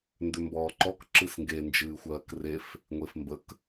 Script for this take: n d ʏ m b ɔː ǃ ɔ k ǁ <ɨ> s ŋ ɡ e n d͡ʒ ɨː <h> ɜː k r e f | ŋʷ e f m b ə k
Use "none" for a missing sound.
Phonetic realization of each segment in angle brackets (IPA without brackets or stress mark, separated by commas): ɨ, xʷ